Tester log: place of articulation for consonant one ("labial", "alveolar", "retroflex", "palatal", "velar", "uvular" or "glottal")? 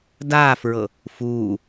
alveolar